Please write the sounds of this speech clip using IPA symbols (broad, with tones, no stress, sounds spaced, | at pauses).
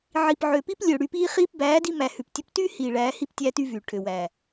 ʕ i˨ p ʕ ø˨ p i˦ p lʲ ø˨ ɽ y˧ p iː˦ χ iː˦ p b æː˨˦ d i˧ m æ˨ h ʉ˨ p tʲ ɵ˧ p t yː˦ h iː˨ ɭ æː˨˦ h i˦˨ p tʲ æː˦ t y˦ v yː˨ ʈʰ ø˨ w æ˨